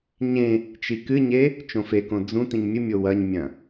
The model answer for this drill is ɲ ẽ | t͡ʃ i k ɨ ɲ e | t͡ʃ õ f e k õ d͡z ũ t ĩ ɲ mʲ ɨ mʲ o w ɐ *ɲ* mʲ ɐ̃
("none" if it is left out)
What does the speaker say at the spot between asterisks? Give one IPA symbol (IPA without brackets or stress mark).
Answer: ɲ